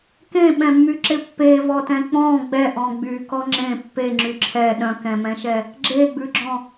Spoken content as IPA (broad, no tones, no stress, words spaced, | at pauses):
kẽɓɛ̃mːyǁɪ pːevɔtɛ̃ k͡pɔ̃ ɡ͡bɛʔɔ̃ ɡ͡bykɔ ŋ͡ǁẽ pːeŋ͡ǁy ǁʰɛ ɗœ̃kɛ̃mɛ̃ʃɛ | ɡ͡ǁeɡ͡bʉɡ͡ǁɔ̃